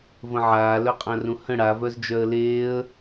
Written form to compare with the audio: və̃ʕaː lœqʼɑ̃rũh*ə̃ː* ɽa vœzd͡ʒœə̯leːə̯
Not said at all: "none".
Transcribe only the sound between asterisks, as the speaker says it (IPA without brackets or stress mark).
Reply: ə̃